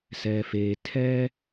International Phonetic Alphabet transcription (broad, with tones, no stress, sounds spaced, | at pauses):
s ɛ˨ f e˨ tʰ ɛ˦